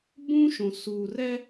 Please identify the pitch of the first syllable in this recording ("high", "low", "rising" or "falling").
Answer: high